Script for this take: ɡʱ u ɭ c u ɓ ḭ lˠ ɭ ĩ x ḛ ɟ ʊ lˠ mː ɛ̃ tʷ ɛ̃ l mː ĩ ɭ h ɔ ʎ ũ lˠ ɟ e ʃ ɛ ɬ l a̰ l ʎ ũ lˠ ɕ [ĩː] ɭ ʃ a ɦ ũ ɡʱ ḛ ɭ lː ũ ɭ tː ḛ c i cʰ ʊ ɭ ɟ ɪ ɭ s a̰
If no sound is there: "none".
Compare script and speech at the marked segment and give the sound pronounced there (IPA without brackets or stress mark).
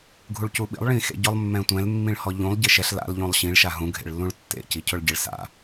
ĩ